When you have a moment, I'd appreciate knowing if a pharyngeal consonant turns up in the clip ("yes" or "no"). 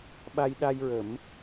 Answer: no